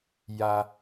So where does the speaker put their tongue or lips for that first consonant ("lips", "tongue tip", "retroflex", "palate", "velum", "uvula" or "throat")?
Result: palate